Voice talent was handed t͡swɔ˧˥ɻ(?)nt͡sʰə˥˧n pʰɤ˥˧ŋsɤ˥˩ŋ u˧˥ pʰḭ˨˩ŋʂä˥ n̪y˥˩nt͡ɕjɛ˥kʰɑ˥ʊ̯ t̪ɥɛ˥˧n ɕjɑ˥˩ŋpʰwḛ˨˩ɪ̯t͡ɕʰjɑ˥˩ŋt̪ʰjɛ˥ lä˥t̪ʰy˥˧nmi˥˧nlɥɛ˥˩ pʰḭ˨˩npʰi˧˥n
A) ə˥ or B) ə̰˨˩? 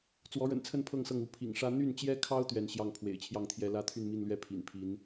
B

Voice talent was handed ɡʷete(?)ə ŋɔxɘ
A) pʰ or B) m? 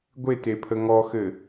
A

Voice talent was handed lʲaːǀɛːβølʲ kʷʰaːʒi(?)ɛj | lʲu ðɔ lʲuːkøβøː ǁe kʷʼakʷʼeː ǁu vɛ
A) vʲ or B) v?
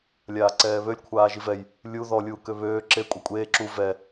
B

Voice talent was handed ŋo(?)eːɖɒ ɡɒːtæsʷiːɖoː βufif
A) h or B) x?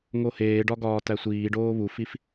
A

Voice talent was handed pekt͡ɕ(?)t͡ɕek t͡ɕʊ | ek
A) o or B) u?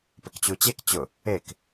B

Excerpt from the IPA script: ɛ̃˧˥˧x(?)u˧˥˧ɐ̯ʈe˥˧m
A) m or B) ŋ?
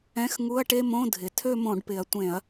B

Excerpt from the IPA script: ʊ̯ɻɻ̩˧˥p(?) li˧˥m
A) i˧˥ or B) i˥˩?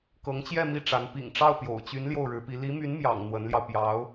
A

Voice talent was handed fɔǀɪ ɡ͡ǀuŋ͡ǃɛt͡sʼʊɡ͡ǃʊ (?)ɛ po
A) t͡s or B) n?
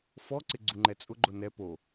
B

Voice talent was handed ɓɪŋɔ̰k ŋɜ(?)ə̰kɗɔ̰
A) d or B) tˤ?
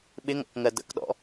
A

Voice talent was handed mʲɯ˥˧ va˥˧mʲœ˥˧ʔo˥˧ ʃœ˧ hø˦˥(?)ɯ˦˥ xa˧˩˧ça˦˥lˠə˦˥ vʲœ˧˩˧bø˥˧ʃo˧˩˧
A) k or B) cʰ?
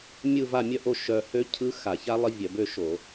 B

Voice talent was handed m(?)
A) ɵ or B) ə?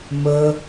B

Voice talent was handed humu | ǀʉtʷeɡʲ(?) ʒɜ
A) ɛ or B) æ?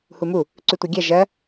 B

